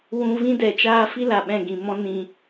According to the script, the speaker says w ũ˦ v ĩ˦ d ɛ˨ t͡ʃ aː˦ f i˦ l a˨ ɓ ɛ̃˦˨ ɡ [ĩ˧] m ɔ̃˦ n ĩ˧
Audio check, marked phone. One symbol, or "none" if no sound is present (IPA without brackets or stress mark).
ĩ˨